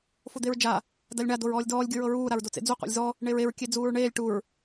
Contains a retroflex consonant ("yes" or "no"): yes